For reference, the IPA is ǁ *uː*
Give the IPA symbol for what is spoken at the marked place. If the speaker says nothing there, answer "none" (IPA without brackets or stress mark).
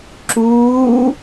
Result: uː